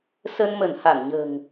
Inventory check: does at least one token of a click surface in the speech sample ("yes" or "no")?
no